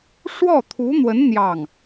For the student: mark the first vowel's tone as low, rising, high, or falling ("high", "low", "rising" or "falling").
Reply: falling